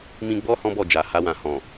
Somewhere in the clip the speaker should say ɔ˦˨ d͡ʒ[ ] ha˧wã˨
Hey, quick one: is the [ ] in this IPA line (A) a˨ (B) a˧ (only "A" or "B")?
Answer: A